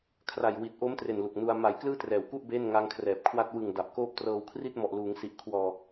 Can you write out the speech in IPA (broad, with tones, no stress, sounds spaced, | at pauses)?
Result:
kʰ r a˨˩ j w i˨˩ t̚ ʔ o˦˥ m t r e˨˩ n l u˨˩ k̚ n u˧ a̯ m a˩˦ j k l ɯː˥˩ t r ɛː˨˩ w k u˥˩ ʔ b eː˥˩ n ŋ a˦˥ ŋ kʰ r ɛː˨˩ p̚ kʰ w a˥˩ t̚ w ɯ˨˩ ŋ d a˨˩ p̚ k oː˥˩ p̚ t r ɤː˧ w kʰ r i˥˩ t̚ m ɔ˨˩ ʔ l uː˩˦ ŋ s i˨˩ ʔ kʰ w ɔː˧